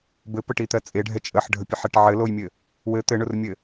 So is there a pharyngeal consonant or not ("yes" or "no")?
yes